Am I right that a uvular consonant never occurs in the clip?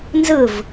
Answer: yes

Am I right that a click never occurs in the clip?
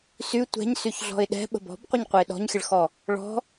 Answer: yes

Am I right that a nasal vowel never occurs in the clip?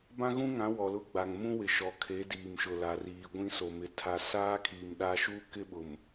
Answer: no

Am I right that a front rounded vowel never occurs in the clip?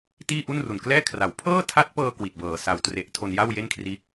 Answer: yes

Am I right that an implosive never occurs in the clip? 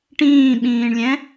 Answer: no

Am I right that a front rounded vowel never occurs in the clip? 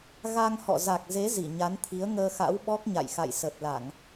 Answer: yes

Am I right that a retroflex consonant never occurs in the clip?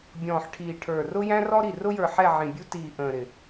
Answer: no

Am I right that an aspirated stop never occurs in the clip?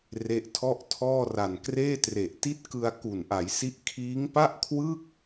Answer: no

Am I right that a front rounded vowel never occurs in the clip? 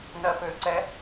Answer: no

